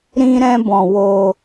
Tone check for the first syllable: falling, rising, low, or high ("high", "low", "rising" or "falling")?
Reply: high